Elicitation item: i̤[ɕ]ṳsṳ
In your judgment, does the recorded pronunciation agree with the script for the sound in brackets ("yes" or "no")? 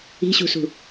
yes